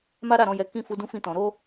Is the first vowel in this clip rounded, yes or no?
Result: no